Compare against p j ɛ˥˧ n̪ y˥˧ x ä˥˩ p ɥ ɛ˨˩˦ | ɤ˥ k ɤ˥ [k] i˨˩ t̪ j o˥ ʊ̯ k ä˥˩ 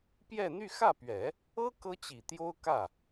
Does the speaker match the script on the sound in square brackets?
no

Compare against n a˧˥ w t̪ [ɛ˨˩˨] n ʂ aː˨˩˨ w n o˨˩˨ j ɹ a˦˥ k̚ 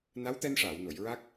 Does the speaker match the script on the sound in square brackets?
no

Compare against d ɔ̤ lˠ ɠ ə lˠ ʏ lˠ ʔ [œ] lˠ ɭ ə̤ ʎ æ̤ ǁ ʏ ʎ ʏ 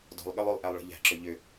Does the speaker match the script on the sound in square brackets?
no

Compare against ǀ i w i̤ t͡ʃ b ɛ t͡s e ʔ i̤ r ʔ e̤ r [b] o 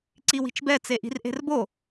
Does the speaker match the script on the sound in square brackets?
yes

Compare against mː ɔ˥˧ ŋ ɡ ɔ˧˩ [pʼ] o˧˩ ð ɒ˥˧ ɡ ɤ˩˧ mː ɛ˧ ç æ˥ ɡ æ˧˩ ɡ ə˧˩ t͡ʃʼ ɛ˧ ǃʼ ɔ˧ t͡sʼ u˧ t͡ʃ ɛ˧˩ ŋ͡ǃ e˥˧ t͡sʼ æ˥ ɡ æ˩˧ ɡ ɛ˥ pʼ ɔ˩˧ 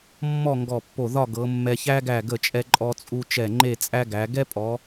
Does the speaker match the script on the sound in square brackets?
no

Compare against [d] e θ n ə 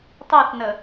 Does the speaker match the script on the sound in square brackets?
no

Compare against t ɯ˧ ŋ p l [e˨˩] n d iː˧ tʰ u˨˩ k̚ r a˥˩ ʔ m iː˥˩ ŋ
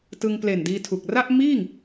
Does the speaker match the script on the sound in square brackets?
yes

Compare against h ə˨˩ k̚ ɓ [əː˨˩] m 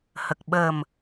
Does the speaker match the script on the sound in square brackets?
yes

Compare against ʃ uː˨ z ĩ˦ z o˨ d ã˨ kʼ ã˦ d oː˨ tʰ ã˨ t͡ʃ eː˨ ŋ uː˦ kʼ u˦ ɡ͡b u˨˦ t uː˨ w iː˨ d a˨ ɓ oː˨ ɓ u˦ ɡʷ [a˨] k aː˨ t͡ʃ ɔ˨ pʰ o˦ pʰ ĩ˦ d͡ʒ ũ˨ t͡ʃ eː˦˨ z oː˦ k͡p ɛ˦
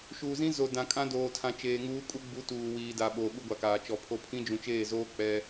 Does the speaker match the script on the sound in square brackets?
yes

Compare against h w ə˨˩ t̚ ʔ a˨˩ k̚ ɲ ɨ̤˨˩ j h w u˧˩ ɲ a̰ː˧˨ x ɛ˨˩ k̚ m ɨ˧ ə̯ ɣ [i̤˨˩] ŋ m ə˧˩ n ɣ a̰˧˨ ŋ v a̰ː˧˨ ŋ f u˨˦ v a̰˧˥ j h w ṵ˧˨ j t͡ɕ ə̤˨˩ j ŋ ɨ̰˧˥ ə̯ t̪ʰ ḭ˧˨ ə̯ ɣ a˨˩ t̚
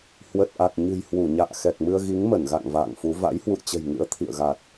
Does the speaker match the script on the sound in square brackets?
no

